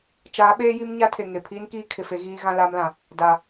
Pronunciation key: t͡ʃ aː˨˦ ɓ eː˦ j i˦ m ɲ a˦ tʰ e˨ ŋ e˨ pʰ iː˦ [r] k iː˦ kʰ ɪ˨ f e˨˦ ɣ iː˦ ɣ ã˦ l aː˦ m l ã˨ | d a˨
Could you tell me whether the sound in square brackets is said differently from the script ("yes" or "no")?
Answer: yes